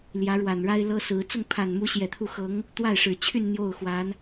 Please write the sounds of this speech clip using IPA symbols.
l j ä˧˥ ɻ w a˨˩ n ɻ a˥ ɪ̯ l ɤ˥ s ɹ̩˧˥ t͡s ʊ˥˩ ŋ pʰ a˨˩ n m u˧˥ ɕ j ɛ˨˩ t̪ʰ u˥˩ x ɤ˧˥ ŋ | t̪ w a˥˩ ɪ̯ ʂ ɻ̩˨˩ t͡ɕʰ y˥˧ n n̪ j o˥˩ ʊ̯ x w a˧˥ n

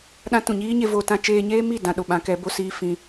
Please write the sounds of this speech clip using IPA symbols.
ɗ ã˦ t ũ˨ ɲ iː˦ ɲ e˧ v o˦ t ã˦ t͡ʃ eː˧ ɲ eː˦ m i˦˨ d ã˧ ɗ o˨ ɓ ã˨˦ k ɛ˨˦ b o˦ s iː˦ f ĩ˦

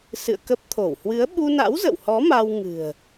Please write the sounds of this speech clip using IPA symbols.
s ɨ̰˧˨ ə̯ k ə˦˥ p̚ t̪ʰ o˧˩ w h w ɨ˨˦ ə̯ ɓ u˧ n a̰˧˥ w z ə̰˧˨ w h ɔ˨˦ m a˧ w ŋ ɨ̤˨˩ ə̯

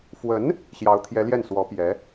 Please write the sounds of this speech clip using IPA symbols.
f w ə˧˥ n | ɕ j ɑ˧˥ ʊ̯ t̪ʰ j ɛ˧˥ l j ɛ˥˩ n s w ɔ˧˥ p j ɛ˧˥

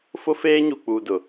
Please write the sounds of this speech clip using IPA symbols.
f ʊ˦ f eː˦ ɲ u˨ k͡p uː˨ d ʊ˨

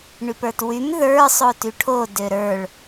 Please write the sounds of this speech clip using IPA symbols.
ɳ y p ə˞ t w y m ð ə˞ sˤ o t y ʈʰ o d ø ɾ ə˞ ɭ

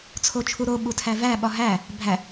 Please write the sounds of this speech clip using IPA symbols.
t͡sʰ o t͡ʃʰ u ɾ o ɓ u tʰ æ v æ ɓ ɒ ɦ æ | bʱ æ

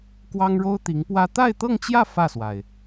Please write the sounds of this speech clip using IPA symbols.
k w ɑ˥ ŋ ɻ o˥ ʊ̯ t̪ i˧˥ ŋ p w ä˥ t̪ a˥˧ ɪ̯ t̪ ɤ˥˧ ŋ t͡ɕ j ä˥˧ f ä˥˩ s w a˩ ɪ̯

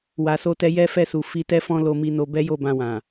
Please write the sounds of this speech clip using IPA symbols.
w a˨ s o˧ t ɛ˧ j ɛ˦ f ɛ˦˨ s u˨ f i˧ t ɛ˦ f ɔ̃˦ l o˧ m i˧ n o˧ b ɛ˦ j o˦˨ b ã˧ w ã˨

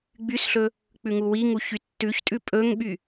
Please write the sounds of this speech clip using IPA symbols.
ɡ͡b y s ɬ ɵ | k͡p ʉ ŋ u w i ŋ u ç y tː ʉ ç tʼ ʉ pʼ ɵ ŋ ɓ y

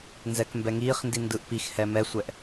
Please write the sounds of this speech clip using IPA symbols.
n z ɛ k m b ɛ ŋ iː χ n d i n d ɯ ʔ p i x h ɛ m ɛ sʷ ɛ ʔ

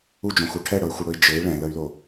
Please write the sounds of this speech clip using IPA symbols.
u d͡ʒ õ x u ʈʰ ɛ ɽ ɤ y̯ xʷ ɘ ɽ ɵ i̯ d͡ʒ ɘ i̯ ɭ ɛ̃ l ə y̯ l o

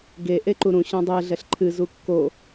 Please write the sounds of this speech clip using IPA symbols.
ɡ e ʔ e ǃ u ɾ ũ ɕ õ dˤ e ɮ ɛ ɬ ǃʰ ɨ z u kː o

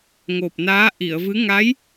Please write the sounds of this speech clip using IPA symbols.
ŋ o˨˩ p̚ n aː˧˥ ʔ i˨˩˨ ə̯ v ɨ˧˥ ŋ a˧˥ j

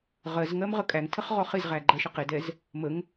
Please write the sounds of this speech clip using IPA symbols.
ʁ ɜ z ŋ ɜ m ʁ ə kʼ æ ŋ tʰ ə χ ʁ ɔ χ ɪ z ʁ æ ɡ͡ǃ ɜ ʃ ə q ɪ d ɛ z | m ə ŋ

